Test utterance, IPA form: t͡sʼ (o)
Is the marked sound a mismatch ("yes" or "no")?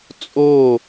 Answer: no